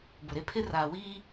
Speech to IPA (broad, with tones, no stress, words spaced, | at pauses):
bʊ˨ɾe˦ pʰɪ˦ raː˨wiː˦